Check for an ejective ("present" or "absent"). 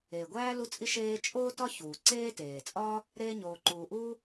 present